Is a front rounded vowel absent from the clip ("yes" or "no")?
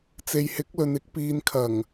yes